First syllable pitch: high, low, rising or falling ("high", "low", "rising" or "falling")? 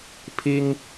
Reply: high